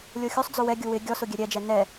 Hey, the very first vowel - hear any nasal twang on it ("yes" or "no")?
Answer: no